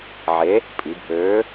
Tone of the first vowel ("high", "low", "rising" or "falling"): rising